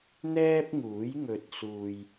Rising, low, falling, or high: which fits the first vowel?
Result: high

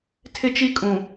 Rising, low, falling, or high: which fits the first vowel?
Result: high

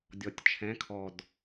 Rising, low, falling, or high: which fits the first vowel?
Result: low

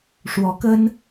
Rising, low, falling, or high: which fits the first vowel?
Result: rising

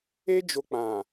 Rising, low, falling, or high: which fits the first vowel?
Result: high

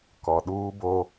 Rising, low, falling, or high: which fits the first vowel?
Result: low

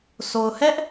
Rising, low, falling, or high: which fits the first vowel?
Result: low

